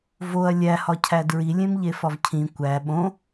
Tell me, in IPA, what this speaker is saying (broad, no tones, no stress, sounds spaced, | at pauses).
v o ɐ̯ lʲ æ h ɒ cʰ æ d ɹ i lʲ ẽ m ʎ e f ɒ v cʰ ĩ kʷ æ ɓ õ